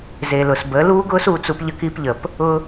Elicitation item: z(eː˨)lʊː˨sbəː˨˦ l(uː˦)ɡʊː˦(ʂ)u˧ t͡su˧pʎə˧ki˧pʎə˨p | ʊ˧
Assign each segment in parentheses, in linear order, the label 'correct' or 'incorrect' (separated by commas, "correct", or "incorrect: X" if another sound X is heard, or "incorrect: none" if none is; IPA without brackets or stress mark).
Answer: correct, correct, incorrect: s